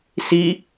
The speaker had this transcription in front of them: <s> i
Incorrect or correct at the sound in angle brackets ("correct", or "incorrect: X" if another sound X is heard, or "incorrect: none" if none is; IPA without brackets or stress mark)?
correct